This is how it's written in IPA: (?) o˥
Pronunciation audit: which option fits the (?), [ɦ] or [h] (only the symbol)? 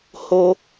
h